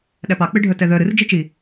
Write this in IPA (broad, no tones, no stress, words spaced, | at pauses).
ɗæpɑk͡pɨɖʱœ tɛðœ ɾɨr d͡ʒit͡ʃi